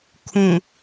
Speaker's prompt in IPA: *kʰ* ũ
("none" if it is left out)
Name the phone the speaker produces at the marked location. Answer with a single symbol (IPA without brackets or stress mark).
kʰ